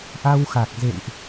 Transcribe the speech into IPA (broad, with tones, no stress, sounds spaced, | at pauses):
ʔ a˧ w x a˨˩ k̚ z ḛ˧˨ ŋ ʔ